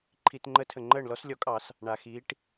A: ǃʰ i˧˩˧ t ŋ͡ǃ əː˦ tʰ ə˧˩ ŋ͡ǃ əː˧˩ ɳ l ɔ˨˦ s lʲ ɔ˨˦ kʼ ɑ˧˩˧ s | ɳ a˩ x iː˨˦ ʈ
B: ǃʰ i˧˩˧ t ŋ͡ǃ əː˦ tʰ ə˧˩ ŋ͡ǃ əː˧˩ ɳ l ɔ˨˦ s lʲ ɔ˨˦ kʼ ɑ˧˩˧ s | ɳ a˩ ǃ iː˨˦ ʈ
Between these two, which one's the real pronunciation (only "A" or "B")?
A